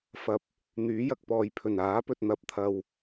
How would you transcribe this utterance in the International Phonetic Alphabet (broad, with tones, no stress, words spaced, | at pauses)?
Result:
fɐ˨p̚ | n̪yː˨˥jɐ˨k̚pɔː˨jpʰɵ˨˩n aː˨˥pɵ˨t̚ n̪ɐ˨p̚t̪ʰɐ˨w